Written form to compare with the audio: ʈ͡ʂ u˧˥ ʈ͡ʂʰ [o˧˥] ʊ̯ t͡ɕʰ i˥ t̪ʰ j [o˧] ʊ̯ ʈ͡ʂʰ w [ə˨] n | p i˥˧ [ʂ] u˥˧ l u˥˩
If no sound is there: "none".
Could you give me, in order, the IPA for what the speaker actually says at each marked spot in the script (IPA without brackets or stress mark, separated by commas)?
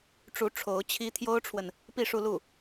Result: o˧˥, o˥, ə˨, ʂ